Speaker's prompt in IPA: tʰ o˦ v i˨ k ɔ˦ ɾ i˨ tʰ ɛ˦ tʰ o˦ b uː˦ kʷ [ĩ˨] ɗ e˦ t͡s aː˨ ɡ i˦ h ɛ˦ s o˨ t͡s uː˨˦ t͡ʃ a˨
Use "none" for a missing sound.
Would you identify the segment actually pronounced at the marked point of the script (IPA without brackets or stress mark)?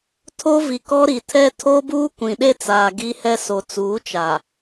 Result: ĩ˨